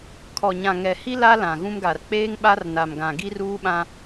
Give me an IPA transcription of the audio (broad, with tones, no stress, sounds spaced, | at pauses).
kʰ ɔ˨ ɲ ã˨ ŋ ɛ˨ h i˦ l a˦ l ã˨ ɣ ũ˦ m ɡ a˨ r k͡p eː˦ ŋ ɓ a˦ r n a˨ m ɡ ã˨ ɡ i˦ r uː˦ ɓ ã˦